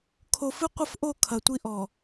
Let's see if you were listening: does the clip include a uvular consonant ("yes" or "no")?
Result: yes